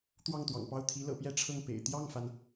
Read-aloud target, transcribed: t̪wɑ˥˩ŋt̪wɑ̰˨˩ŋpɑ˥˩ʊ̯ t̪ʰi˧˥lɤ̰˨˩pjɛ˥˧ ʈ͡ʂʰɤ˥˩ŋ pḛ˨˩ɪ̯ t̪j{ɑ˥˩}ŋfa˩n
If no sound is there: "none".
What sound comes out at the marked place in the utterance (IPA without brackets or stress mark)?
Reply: ɑ˥˩